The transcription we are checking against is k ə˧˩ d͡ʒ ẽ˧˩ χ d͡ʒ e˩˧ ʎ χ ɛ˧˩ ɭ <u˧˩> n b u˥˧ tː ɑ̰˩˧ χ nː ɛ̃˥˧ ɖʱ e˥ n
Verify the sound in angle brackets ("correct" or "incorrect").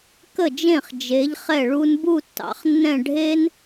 incorrect